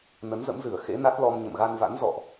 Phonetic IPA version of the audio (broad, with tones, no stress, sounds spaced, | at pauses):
n ə˨˦ n z ə̰˧˥ m z ɨ˧˩ ə̯ x ḛ˧˥ n a˦˥ t̚ l ɔ˧ m ɲ ə̰˧˨ m ɣ a˧ n v a̰˧˥ n z ɔ̰˧˨ ʔ